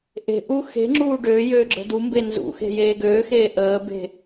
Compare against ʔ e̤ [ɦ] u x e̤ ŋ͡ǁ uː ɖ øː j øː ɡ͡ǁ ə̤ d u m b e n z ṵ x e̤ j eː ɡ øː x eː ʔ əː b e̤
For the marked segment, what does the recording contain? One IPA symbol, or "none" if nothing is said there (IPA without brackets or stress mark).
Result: ʔ